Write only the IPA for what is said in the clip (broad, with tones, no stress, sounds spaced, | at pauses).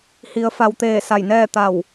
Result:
h i˩˧ ə̯ f a˩˧ w t̪ eː˧˩ s a˧˩ j n ɛː˥˨ t̪ a˧˩ w